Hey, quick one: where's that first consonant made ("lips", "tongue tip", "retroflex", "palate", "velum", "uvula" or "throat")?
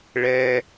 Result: retroflex